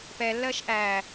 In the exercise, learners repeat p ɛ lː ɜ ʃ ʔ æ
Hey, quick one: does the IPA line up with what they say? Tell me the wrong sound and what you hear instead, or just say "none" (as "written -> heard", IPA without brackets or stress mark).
none